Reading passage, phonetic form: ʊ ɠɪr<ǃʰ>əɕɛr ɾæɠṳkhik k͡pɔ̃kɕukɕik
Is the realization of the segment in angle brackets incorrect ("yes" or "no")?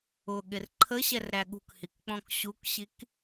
no